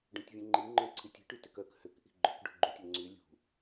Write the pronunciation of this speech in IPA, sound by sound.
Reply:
ɖ œ̃ tʲ vʲ ũ ŋ͡ǃ i ŋ͡ǃ œ̃ ǀʰ i tʲ i̤ ʈ y t ɪ k œ k h ʏ k ʔ i̤ ɡ͡ǃ ʏ k ɖ ṳ ɡ͡ǃ ũ tʲ ʊ ŋ͡ǀ y lʲ ṳ

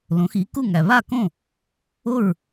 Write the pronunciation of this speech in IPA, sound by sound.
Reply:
l õ˩˥ x i˩˥ k u˥˩ ŋ æ˩ β a˥˩ k õ˥˩ | o˥˩ ɹ

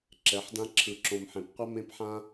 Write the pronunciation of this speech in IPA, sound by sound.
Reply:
ǁ ɛ˨˦ ħ d ã˦ ǁʰ ɯ˨ ǁ õ˨ m ħ ẽ˨ p qʷ ʌ˦ m ẽ˦ p ħ ã˦

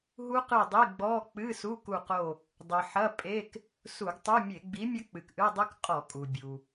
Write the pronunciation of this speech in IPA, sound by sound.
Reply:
ɦ u˦˥ q ɨ˦˨ dˤ i˧˥˧ ɡ͡b ɔ˧˥˧ k͡p ɨ˧˥˧ s u˧˥˧ k u˦˨ q o˦˨ | dˤ ɨ˩ ħ ɐ˧˥˧ pʼ e˧˥˧ k | s u˧˩˧ ɡ tˤ u˧˥˧ mʲ e˧˩˧ ɡ͡b i˨˥ mʲ ɐ˦˥ k͡p ɨ˩ k ʔ ɨ˧˥˧ dˤ ɨ˦˥ k qʼ ɔ˧˩˧ kʼ u˩ bʲ u˩

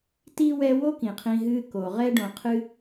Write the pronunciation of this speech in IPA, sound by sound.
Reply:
t i˥ w ɛ˦ w o˥ k ĩ˩ qʰ ĩ˨ ɦ ɨ˦ k o˩ ʁ ɛ˥ ɖ õ˨ qʰ ɨ˥

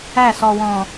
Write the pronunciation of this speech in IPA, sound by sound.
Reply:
æ˦˨ s ɔ˨ w ɔ̃˨

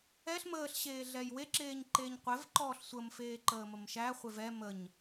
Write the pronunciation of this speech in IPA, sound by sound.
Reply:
ɛ ɬ m əː ɬ ɕ eː ɮ ɛ j w e ǁ eː ɲ ǃ eː ɲ qʷ ɛ v ǃ ɔː ɬ sʷ ə m f eː ǃ əː m ə m ʃ æ χʷ e v ɛ m ə ɲ

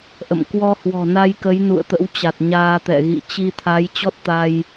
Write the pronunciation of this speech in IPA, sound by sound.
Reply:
ʔ ə̰˧˨ m k w ɔ˧ h w ɔ̤˨˩ n a˧ j k ə˨˦ j n ṵ˧˨ ə̯ t̪ ə̰˧˥ w t͡ɕ a˨˩ t̚ ɲ aː˧ t̪ ɛ̰˧˨ ɣ ḭ˧˨ t͡ɕ i˧ t̪ʰ a˨˦ j t͡ɕ ɔ˦˥ t̚ t̪ aː˧ j

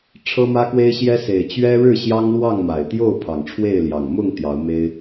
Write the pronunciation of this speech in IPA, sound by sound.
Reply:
ʈ͡ʂʰ ɤ˦ m ä˦ k w e˦ ɪ̯ ɕ j ɛ˦ s e˨˩ ɪ̯ t͡ɕ ɥ ɛ˦ ɻ ɻ̩˥˨ ɕ j ɑ˦ ŋ l w ɑ˥˨ ŋ m a˨˩ ɪ̯ t̪ j o˥˨ ʊ̯ pʰ ɑ˨˩ ŋ ʈ͡ʂʰ w e˥˨ ɪ̯ l j ɑ˨˩ ŋ m ʊ˥˨ ŋ t̪ j ɑ˨˦ ʊ̯ m e˦ ɪ̯

